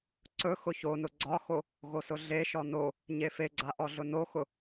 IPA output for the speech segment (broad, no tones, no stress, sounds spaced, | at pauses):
ǀ ɵ x ʊ ç o n ʊ ɡ͡ǀ ɒ x o | ɣ o s ʊ ɮ e ʃ ɔ n o | ɲ e f e ɡ͡ǀ a ʔ ɔ ɮ ʊ n o x ʊ